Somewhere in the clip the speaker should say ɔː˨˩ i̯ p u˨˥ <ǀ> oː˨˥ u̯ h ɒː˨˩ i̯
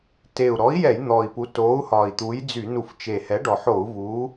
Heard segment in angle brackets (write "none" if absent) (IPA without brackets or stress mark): t